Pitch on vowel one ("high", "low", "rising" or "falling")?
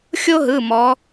high